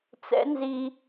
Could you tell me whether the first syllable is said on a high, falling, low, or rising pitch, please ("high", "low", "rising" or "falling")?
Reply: rising